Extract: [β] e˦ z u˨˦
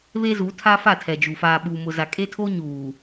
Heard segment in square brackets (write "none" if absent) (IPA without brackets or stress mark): β